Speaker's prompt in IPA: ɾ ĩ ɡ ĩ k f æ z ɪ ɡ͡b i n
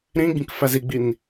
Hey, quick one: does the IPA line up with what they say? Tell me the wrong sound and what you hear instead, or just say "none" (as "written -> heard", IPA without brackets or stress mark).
ɪ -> i